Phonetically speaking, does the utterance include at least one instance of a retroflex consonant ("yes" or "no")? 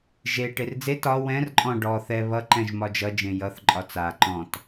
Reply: yes